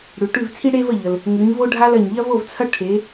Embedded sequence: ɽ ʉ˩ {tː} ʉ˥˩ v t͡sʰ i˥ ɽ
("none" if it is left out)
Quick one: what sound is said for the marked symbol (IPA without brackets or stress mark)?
ʈ